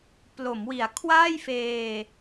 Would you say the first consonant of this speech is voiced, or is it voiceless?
voiceless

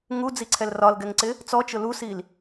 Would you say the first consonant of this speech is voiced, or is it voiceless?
voiced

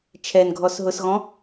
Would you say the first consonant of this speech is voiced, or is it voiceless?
voiceless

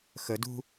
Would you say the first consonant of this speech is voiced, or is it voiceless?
voiceless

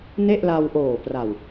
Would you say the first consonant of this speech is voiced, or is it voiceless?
voiced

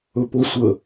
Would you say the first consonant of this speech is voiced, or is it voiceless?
voiceless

